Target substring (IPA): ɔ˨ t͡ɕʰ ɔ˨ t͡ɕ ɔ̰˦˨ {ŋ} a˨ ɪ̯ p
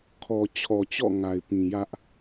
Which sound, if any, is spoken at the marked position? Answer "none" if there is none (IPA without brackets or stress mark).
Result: ŋ